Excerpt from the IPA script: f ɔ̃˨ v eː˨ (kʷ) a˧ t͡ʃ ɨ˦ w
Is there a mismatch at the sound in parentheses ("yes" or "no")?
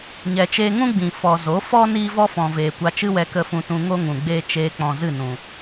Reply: no